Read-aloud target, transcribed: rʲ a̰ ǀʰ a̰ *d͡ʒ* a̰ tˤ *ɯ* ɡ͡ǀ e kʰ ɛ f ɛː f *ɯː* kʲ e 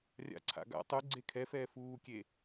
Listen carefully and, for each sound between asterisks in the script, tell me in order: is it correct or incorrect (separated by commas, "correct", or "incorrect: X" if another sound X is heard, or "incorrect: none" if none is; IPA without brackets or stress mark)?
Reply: incorrect: ɡ, correct, incorrect: uː